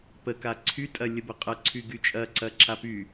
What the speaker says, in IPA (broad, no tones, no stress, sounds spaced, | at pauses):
p ə k a ǀʰ y tʼ ɐ lʲ ə b ə qʼ ɐ ǀʰ y ɡ y t͡ʃʼ ɐ ǀ ɐ ǁ a p y